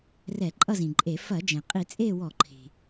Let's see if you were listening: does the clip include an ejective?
yes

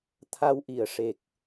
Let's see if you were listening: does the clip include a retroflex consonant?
yes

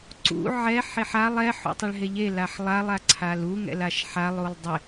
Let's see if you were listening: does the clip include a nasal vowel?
no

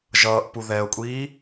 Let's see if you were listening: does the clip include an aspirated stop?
no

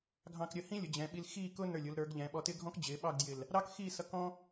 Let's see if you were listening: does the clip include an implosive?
yes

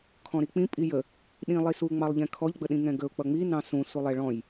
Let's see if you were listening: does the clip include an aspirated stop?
yes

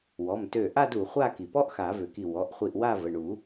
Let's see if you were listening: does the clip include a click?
no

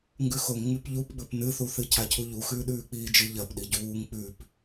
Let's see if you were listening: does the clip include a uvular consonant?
no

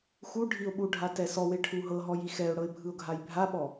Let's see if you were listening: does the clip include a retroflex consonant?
yes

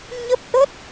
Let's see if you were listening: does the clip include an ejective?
no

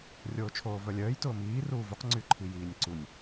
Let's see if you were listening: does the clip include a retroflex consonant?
no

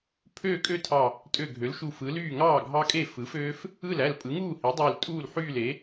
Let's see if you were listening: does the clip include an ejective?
yes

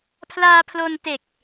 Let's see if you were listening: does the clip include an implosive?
no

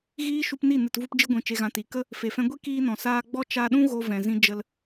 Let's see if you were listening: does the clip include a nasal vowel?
yes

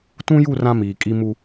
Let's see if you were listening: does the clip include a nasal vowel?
yes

